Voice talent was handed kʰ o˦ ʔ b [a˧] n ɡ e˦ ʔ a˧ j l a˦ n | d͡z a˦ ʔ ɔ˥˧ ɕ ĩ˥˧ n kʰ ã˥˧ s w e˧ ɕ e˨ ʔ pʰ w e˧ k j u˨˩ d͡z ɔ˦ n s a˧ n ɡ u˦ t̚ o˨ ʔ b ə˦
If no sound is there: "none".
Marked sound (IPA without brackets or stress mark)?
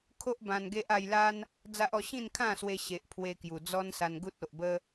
ã˧